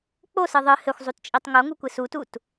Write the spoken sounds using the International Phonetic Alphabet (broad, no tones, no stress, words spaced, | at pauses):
k͡posɨ ðˤɨ hɘxʷzˤutt͡ʃʼitˤ ŋoŋukʷɨ sutut